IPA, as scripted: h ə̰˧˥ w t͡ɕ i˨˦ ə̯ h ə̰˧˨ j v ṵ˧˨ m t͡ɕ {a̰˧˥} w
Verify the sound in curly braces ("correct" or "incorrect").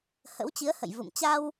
incorrect